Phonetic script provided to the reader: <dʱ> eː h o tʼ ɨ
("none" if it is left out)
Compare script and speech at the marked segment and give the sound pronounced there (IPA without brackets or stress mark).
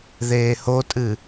ð